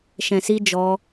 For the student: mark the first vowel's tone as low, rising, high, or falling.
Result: low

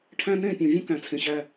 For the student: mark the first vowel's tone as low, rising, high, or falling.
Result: high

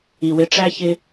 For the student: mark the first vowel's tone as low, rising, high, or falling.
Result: low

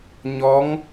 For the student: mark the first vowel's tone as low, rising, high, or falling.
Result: rising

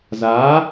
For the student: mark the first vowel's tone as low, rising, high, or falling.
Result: rising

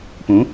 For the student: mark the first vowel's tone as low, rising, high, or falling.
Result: rising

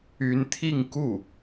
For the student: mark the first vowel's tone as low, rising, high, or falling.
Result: rising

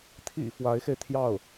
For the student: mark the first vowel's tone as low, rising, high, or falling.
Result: low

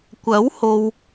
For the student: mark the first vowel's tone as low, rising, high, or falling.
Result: rising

